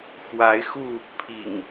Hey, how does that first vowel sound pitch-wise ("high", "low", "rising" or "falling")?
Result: rising